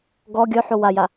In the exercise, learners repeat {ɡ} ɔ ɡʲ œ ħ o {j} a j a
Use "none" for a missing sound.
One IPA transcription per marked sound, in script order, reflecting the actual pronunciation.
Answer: ɡ, w

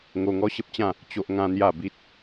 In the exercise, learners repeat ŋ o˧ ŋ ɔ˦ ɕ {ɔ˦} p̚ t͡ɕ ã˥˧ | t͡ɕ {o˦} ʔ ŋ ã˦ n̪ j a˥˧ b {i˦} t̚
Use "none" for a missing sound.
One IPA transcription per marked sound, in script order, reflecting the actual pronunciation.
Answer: ə˦, o˦, i˦

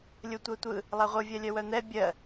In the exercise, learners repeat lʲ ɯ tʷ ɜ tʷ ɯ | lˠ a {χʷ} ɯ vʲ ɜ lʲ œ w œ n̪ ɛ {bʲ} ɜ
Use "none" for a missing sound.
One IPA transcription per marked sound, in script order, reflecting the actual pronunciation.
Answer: ʁʷ, bʲ

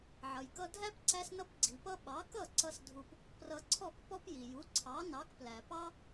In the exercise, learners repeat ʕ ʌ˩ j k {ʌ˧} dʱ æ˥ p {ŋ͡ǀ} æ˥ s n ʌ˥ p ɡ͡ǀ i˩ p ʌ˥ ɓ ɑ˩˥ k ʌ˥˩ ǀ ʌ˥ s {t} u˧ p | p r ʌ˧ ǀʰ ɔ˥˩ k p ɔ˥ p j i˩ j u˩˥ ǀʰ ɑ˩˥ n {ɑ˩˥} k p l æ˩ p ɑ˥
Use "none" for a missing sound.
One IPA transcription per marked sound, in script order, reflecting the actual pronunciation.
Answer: ʌ˧, ǀ, dʱ, ɑ˩˥

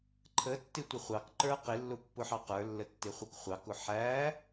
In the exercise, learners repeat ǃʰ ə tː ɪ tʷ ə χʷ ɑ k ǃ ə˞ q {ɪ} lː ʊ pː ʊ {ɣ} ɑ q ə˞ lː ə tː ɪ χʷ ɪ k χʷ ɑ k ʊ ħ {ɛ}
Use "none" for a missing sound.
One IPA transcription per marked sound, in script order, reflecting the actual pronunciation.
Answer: ɪ, ħ, æ

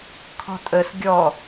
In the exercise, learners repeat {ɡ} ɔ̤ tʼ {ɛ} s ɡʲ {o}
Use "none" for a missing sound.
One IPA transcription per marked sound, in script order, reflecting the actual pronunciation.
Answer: kʰ, ə, ɔ

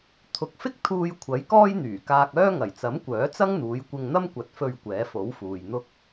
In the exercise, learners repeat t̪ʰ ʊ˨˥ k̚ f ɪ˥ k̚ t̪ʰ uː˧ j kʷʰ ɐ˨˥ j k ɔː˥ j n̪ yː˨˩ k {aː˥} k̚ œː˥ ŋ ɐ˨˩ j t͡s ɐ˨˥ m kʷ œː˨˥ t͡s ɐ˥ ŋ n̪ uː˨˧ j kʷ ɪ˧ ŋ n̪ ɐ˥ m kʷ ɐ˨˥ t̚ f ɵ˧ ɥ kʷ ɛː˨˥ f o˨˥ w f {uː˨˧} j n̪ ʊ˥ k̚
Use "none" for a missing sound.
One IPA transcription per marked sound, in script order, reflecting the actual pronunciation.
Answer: aː˧, uː˨

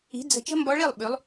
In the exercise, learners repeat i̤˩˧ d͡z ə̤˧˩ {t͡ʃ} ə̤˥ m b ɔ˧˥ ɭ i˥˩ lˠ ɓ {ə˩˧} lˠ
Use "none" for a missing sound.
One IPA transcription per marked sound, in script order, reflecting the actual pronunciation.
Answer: t͡ʃ, ʉ˩˧

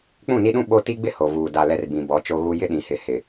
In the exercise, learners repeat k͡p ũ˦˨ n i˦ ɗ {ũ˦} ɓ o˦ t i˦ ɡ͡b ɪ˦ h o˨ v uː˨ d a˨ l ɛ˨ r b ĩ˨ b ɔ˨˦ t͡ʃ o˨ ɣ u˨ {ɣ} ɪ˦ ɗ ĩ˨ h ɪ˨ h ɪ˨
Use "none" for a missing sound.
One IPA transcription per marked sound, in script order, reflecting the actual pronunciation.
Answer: ũ˦, j

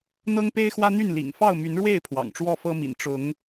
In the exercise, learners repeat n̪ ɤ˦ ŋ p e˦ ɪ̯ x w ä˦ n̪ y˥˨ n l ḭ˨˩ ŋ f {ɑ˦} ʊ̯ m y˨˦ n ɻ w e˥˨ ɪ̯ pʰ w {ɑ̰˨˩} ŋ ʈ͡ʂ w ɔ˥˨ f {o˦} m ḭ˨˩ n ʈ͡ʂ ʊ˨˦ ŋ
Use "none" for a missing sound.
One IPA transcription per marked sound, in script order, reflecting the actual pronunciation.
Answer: ɑ˥˨, ɑ̰˨˩, ɤ˦

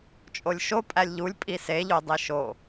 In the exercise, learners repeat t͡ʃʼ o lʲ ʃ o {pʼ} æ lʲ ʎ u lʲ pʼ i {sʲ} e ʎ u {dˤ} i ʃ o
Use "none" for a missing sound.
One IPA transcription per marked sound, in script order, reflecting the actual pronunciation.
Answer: pʼ, s, dˤ

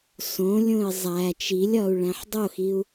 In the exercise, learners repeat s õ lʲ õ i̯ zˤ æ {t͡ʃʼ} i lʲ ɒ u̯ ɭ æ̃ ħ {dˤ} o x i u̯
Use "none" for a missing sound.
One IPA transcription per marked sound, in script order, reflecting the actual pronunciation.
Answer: t͡ʃ, dˤ

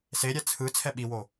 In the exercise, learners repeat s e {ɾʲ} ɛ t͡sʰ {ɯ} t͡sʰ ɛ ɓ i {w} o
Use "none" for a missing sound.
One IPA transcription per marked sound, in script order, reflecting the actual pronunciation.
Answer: ɾʲ, ɯ, w

